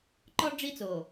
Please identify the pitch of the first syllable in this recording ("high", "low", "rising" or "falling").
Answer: high